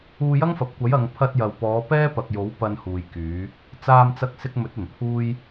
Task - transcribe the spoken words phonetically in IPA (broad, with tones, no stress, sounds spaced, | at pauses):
uː˧ j ɐ˥ ŋ f ɐ˨ p̚ kʷ ɐ˨˥ j ɐ˨ ŋ pʰ ɐ˧ t̚ j ɐ˨ w p ɔː˨˧ p ɛː˥ p ɐ˨ k̚ j o˨˥ w p ɐ˧ n h uː˨ j k yː˨˧ | t͡s aː˧ m t͡s ɐ˧ k̚ s ɪ˧ k̚ m ɵ˨˥ t̚ ɵ˨˩ n pʰ uː˥ j